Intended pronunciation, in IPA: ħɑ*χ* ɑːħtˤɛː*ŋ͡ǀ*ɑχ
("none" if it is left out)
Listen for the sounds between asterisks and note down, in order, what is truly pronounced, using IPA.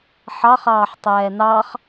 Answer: χ, n

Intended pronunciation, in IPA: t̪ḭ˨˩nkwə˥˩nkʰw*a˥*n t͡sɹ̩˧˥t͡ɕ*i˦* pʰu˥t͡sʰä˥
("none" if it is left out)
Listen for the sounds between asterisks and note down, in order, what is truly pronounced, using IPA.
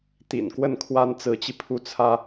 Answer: a˥, i˧

